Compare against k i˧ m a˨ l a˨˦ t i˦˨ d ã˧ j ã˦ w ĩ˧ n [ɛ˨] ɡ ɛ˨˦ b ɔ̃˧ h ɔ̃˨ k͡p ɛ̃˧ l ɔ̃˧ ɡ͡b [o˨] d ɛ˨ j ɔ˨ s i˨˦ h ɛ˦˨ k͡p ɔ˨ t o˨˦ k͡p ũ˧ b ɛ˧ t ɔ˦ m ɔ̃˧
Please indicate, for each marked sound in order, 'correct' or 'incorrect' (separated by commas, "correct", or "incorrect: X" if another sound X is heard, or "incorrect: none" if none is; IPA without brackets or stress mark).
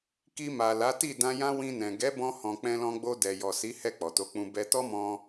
incorrect: ɛ̃˨, incorrect: o˧